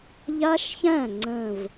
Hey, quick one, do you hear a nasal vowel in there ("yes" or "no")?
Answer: yes